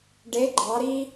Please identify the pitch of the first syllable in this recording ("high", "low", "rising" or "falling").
rising